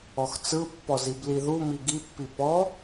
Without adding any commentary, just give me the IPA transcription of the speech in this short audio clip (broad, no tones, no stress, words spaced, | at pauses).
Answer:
ɔxt͡sɯpːɔz ibliðumi ɡipːi pɔ